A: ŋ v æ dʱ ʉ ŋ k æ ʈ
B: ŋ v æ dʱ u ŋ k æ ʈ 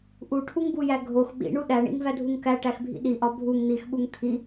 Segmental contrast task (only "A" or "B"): B